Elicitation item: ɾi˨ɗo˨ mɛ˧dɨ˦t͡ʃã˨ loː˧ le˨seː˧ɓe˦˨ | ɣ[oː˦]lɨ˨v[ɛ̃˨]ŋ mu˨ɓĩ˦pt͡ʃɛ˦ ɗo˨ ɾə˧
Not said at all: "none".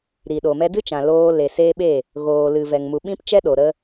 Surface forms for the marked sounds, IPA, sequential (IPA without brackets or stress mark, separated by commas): oː˨, ɛ˨